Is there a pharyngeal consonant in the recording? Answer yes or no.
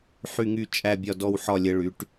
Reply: yes